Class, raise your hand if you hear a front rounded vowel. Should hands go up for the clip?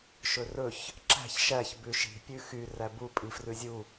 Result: yes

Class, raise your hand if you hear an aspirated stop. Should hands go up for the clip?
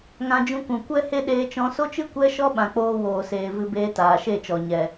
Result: no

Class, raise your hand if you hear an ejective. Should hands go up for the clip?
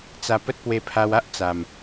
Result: no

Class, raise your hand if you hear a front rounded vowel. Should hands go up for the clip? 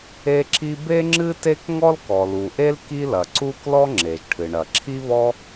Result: no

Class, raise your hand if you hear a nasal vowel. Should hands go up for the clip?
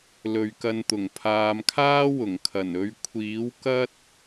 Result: no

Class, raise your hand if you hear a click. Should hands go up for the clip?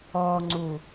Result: yes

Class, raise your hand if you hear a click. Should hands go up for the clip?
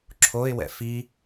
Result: yes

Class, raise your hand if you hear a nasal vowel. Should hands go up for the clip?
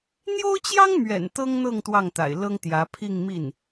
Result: no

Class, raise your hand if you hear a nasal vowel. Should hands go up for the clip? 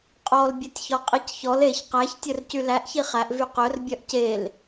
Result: no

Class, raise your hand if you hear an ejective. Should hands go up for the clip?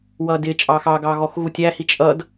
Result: yes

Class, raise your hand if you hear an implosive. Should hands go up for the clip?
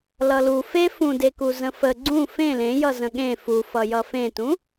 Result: yes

